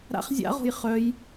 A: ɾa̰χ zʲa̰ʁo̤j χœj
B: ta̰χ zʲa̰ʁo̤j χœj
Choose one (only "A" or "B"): A